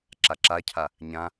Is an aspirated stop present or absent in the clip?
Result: present